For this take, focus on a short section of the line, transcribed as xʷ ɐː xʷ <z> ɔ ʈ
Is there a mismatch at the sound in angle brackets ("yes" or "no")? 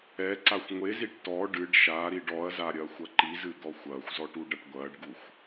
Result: no